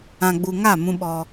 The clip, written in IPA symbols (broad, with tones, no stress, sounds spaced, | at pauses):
ã˨ ɡ͡b u˨ ŋ a˦˨ m ũ˦ ɓ ɔ˦